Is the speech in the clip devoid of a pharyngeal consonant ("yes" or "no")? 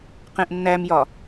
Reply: yes